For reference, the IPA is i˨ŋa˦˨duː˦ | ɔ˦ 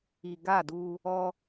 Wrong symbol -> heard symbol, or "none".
ŋ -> ɡ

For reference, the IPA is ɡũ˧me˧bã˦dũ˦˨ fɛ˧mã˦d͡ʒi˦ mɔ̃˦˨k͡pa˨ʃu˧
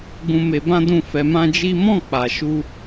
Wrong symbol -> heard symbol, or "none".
none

